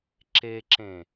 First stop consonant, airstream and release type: click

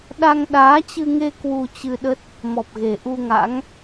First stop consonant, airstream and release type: implosive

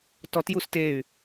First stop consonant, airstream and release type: plain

